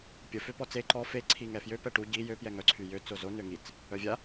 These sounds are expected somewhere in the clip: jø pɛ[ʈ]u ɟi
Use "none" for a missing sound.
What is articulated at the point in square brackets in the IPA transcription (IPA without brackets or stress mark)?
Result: ʈ